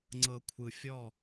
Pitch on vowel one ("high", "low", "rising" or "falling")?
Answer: low